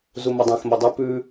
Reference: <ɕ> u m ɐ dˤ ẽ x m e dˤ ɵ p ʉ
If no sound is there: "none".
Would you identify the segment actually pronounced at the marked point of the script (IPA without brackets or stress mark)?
z